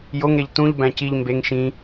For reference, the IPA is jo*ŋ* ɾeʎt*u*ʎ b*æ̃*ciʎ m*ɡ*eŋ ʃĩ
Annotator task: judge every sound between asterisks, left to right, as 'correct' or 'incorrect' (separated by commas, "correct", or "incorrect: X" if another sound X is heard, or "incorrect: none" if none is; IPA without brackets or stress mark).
correct, incorrect: ũ, correct, incorrect: b